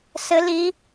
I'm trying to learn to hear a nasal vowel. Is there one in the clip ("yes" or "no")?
no